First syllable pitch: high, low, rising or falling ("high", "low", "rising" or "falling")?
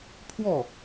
falling